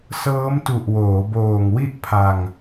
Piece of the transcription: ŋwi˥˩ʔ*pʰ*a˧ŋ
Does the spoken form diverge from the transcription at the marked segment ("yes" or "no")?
no